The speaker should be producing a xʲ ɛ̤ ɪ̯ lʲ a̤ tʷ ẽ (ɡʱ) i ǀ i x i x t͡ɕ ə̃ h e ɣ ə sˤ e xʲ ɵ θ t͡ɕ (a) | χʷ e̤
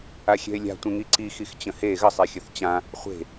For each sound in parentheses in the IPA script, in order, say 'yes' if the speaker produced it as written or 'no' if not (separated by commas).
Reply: no, no